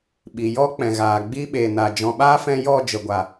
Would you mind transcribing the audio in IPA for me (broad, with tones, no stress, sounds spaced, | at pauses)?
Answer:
ɓ i˨ j ɔ˦ k͡p ɛ̃˨ ɣ aː˨ ɡ͡b i˦ ɓ e˨ n a˨ d͡ʒ ɔ̃˨ ɓ aː˦ f ɛ̃˧ j ɔ˦˨ d͡ʒ ə˨ ɡʷ a˨